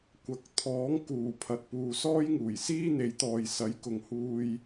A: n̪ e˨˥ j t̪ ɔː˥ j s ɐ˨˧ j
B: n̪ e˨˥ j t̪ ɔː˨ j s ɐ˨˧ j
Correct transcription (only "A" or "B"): B